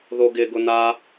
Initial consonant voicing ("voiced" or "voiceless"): voiced